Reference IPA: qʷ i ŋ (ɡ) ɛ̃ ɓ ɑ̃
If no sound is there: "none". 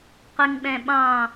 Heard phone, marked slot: ɓ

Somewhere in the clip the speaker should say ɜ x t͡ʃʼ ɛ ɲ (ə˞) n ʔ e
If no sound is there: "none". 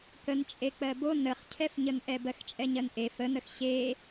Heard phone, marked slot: ɜ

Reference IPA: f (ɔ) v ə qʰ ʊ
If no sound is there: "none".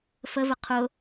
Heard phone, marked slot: ə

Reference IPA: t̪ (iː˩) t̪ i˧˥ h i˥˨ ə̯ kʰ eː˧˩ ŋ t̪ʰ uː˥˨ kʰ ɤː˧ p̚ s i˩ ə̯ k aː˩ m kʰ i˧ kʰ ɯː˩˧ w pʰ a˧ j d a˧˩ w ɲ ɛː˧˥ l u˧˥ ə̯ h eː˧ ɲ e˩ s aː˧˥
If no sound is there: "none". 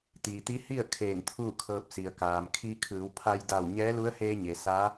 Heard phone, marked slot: iː˩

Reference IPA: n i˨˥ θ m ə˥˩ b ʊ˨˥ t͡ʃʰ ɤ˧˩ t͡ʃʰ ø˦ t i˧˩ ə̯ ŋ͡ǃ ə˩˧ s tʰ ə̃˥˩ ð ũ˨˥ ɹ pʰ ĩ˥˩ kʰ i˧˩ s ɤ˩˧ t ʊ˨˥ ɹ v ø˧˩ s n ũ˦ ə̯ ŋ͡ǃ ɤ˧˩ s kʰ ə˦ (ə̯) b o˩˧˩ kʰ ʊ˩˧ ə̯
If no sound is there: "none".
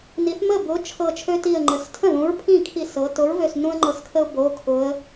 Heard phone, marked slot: ʊ̯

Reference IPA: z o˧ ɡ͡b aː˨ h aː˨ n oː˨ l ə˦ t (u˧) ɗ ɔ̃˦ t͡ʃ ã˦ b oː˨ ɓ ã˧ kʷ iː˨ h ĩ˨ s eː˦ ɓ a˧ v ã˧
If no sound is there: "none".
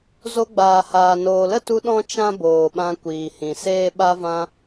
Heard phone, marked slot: u˧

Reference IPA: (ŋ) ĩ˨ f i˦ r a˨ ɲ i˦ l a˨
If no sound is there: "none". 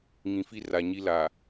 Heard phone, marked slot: ŋ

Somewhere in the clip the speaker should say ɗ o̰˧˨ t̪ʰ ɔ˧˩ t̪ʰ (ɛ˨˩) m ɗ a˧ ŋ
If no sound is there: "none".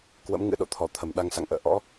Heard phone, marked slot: ə˨˩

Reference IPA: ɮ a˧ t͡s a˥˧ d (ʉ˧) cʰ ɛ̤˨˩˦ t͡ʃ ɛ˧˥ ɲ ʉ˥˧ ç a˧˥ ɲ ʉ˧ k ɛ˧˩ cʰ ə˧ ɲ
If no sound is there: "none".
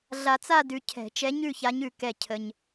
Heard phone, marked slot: ʉ˧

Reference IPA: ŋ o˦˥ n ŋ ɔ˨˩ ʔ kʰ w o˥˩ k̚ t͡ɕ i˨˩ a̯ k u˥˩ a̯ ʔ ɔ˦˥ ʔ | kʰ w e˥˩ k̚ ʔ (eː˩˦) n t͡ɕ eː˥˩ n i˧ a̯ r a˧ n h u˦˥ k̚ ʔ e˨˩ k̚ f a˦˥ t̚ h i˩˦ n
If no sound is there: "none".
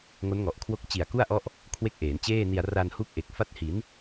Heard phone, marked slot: eː˩˦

